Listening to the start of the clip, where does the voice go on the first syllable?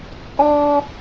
high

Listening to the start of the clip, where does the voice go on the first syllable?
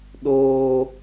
high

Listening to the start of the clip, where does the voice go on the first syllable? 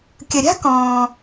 low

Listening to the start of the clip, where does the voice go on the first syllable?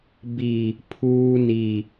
low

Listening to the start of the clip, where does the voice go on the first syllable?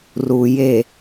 low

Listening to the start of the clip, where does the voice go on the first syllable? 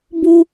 high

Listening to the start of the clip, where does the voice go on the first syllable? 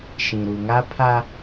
low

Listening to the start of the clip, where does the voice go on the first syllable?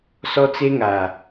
high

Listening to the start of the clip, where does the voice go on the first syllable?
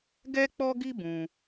high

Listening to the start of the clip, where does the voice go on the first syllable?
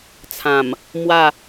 low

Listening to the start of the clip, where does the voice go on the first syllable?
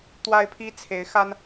high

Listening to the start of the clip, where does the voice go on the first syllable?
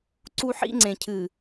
high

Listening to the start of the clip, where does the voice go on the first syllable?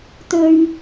low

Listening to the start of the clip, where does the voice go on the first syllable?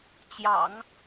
low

